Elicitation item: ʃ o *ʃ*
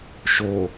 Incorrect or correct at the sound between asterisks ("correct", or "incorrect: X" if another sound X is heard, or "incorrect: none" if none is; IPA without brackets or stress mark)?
incorrect: none